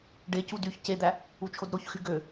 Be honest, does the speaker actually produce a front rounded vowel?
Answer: yes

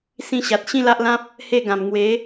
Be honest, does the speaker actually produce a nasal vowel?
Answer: yes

